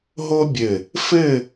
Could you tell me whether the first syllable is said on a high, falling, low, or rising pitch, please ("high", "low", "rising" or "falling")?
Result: high